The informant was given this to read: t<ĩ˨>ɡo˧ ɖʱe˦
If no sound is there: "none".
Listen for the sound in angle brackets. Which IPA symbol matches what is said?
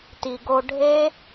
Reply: i˨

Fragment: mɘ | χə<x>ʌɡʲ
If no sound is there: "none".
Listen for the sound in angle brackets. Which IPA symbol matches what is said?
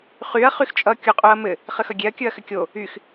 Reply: x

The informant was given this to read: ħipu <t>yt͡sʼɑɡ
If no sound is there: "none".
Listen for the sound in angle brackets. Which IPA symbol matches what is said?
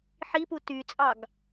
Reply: t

